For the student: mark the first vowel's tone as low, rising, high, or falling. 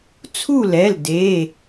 falling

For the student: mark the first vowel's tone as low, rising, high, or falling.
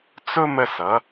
high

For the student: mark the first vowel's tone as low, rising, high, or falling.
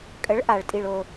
rising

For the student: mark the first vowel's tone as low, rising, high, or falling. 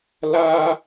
high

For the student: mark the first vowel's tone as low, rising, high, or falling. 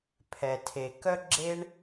low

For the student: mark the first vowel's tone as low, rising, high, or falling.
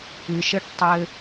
low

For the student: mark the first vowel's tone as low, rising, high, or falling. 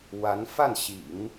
rising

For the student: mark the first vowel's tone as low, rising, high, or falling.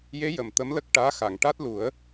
rising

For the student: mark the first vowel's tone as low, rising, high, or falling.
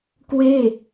falling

